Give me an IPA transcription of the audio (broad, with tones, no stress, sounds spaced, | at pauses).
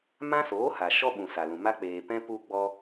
m ã˦ s oː˨˦ h a˨ ʃ ɔ˦ ɓ ũ˨ s a˨ l ũ˨ m a˦ k͡p eː˨ p ɛ̃˦ p u˧ ɡ͡b ɔ˧